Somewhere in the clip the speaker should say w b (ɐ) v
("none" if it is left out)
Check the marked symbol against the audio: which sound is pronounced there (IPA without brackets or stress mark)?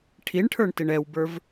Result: ə˞